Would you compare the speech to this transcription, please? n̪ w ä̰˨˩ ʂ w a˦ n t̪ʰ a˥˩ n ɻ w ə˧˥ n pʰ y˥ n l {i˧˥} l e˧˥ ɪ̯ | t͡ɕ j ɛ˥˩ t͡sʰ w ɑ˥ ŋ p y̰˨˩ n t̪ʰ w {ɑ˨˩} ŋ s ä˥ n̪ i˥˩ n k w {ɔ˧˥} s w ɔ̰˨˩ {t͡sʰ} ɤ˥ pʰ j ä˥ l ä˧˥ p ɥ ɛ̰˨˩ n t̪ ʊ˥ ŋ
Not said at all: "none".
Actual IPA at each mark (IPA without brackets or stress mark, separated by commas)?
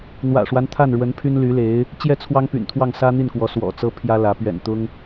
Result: y˧˥, ɑ˥˩, ɔ˧˥, t͡s